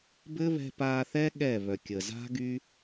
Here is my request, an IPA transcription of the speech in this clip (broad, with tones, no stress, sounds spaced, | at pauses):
b ɘ˦ β ɛ̤˧ p a˧ θ ɛ˦ ɠ ɛ˦˨ β œ˨ kʲ ə˨ z a̤˦ ɡ y˦